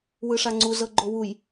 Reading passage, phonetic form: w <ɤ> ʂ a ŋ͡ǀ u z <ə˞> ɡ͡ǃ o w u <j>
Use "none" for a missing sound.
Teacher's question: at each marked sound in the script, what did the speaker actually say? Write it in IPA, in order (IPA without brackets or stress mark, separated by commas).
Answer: ɯ, ɤ, j